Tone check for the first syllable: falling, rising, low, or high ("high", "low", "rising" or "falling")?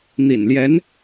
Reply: low